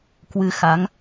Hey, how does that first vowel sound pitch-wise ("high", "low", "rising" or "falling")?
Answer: rising